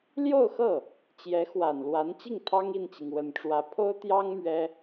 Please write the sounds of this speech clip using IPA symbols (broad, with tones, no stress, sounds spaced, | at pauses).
l j o˥˧ ʊ̯ x ɤ˥˩ | t͡ɕ j ɛ˧˥ x w a˨˩ n l w a˧˥ n t͡ɕ i˥˩ ŋ t̪ʰ ɑ˥ ŋ i˥˩ n t͡ɕ i˩ ŋ w ə˨˩ n ʈ͡ʂ w ä˧˥ pʰ o˥ ʊ̯ t̪ j ɑ˥ ŋ m ɥ ɛ˥